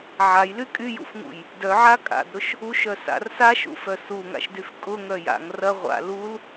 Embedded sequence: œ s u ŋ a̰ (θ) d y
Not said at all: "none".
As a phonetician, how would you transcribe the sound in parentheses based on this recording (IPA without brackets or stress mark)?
ʃ